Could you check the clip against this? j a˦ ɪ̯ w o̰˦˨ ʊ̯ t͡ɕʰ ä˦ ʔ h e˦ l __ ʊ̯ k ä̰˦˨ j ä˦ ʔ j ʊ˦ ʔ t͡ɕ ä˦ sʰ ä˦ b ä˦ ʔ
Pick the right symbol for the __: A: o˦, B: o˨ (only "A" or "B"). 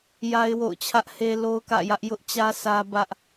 A